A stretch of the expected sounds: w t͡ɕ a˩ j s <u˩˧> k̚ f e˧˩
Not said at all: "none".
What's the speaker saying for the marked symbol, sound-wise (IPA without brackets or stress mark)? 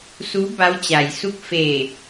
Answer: u˥˨